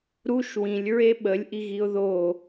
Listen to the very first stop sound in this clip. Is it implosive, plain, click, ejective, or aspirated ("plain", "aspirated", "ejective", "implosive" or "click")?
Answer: implosive